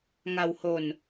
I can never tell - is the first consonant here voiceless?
no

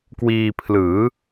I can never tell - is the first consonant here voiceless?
yes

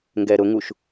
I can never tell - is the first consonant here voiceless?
no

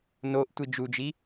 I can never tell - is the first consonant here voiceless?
no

